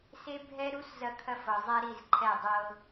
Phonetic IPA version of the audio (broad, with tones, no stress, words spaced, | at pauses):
se˦ bʱɛ˦ɾu˦s zɐ˦kʰɐ˦fɤ˨ zˤɛ˦ɾi˦˨zǃʰɛ˦˨ dˤɤ˦